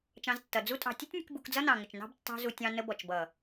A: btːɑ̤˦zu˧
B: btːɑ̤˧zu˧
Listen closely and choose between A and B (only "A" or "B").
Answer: A